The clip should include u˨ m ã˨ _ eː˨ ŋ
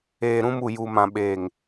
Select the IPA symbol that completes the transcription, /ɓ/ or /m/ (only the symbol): ɓ